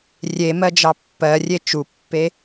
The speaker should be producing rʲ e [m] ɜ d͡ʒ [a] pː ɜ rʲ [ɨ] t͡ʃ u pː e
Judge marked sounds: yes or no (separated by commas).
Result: yes, no, no